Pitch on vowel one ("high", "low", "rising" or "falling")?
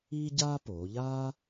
high